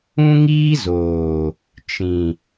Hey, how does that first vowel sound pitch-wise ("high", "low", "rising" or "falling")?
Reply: high